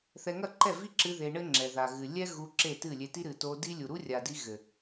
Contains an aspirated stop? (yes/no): no